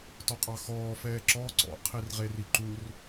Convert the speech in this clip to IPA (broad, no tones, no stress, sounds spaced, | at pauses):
t ɔ qʼ ɑ x ɔː f ɛː ǁ ɔ ǀ ɔ̰ qʰ i r ʁ e r i ǃ u r